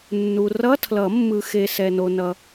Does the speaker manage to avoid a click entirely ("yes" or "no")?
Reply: yes